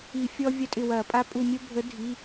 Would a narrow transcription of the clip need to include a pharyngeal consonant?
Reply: no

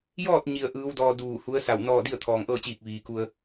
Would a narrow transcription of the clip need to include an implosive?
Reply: no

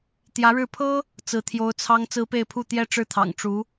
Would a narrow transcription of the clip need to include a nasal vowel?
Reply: no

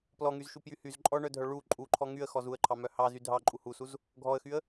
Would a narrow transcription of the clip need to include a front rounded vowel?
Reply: yes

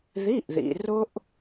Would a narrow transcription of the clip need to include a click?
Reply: no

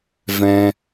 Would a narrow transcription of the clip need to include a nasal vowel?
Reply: yes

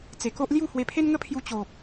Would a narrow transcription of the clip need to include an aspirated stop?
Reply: yes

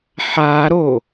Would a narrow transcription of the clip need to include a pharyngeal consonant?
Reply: yes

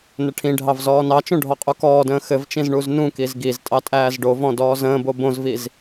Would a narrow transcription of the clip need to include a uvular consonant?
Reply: yes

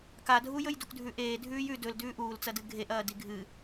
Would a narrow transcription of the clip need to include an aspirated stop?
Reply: no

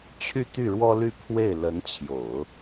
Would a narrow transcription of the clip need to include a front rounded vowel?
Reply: yes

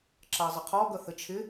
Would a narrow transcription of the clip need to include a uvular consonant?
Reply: yes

